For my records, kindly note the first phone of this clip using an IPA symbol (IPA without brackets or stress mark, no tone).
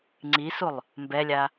ŋ͡ǀ